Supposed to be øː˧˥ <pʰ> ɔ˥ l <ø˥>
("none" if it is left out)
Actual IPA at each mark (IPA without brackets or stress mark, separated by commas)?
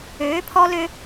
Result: pʰ, ø˥